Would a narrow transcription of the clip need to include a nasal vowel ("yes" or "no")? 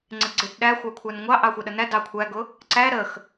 no